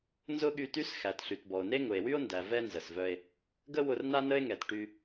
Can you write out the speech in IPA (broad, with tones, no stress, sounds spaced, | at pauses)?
n z ʊ˥ ɠ y˧ t y˥ s x æ˩ t ɬ y˩ t b ɔ˩ o̯ n e˥ ŋ ʊ˩ e̯ w y˥ o̯ n d æ˩ v ɛ˥ n z ə˩ s v œ˧ e̯ | ɡ ə˥ w ʊ˧ r n a˥ n ə˥ e̯ ŋ ɛ˩ t ʈ y˧